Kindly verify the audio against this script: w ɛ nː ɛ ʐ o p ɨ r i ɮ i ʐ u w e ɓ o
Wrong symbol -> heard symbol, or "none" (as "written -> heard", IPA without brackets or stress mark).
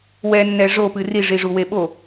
ɮ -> ʐ